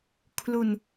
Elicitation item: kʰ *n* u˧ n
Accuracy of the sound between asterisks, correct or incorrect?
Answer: incorrect